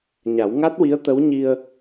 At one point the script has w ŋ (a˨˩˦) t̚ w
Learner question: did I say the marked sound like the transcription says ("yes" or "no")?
no